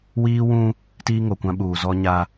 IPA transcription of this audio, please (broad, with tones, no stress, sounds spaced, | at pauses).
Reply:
w iː˦ w ũ˦ | t iː˦ ŋ o˨ kʷ ã˦ ɓ uː˨ z ɔ˦ ɲ a˦